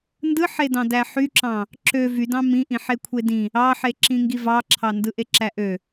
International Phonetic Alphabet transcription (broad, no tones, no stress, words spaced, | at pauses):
ndɯħedɑ̃ dæħyǁɑ̃ | ǁø vydɑ̃ mĩʔĩ ħekʷʰedĩ | ɑħeǁĩ ŋɡivɑǁʰɑ ndɯʔeǁæʔø